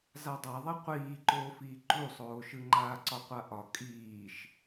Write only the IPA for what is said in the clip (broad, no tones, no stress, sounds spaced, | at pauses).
z a dˤ a ðˤ i qʷ iː ǃ oː f iː ǃ u sˤ oː ʃ ɯ ŋ͡ǃ aː ǀ ɒ qʷ a ʔ ɒ kʼ iː ʃ